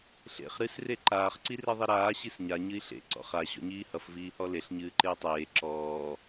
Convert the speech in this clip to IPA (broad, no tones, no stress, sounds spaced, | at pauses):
ɬ ḛ χ ɾ ɨ s r e ǃ aː χ ǀ i r e ðˤ i ɾ aː ɕ i s ɲ a ɲ ɨ i̯ ɬ ḛ ǀ ɔ̰ χ a ɕ ɔ̰ ɲ iː h ʌ f v iː h ɔ l e ɬ ɲ ɨː ǃ e y̯ tˤ eː ǁ ɔː